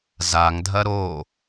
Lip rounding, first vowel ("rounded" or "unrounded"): unrounded